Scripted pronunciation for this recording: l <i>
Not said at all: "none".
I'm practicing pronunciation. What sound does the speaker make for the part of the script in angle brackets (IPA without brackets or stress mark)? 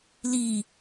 i